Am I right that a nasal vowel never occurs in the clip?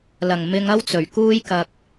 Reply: yes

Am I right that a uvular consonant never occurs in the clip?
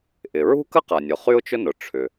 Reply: no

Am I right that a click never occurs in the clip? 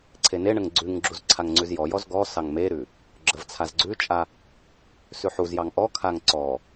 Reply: no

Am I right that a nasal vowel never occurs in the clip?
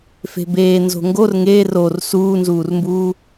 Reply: yes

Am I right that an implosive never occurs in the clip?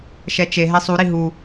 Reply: yes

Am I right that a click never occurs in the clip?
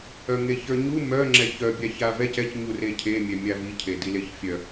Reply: no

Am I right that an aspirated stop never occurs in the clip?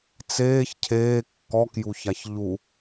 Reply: no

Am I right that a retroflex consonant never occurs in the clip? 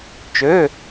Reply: yes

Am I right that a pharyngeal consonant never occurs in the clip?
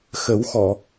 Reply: yes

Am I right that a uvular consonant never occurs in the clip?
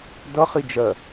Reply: no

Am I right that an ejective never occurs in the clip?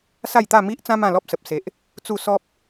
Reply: yes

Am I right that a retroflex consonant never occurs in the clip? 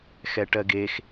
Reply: no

